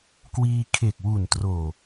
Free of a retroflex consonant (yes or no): yes